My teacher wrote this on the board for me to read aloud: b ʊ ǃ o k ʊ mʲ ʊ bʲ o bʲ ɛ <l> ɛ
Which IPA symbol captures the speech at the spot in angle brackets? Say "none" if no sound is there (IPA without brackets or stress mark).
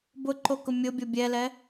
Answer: l